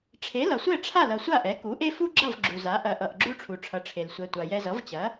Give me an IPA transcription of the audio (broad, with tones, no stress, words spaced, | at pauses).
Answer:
ʈ͡ʂʰe˩˥lʌ˩sʷɛ˥˩ ʈ͡ʂʰa˥˩lʌ˩ sʷa˥˩ʔɛ˩˥ku˩˥ʔe˥ fu˥ɡ͡ǁʌ˥˩v ɡ͡ǁu˩za˩˥ ʔɐ˩ʔʌ˩ʔ ɡ͡ǁu˥ʈ͡ʂʰu˩ʈ͡ʂʰʌ˩˥ʈ͡ʂʰe˩l sʷɛ˩tʷa˩ jɛ˧zʌ˩˥vt͡ɕɐ˩˥